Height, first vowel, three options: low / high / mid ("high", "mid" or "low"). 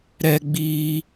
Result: mid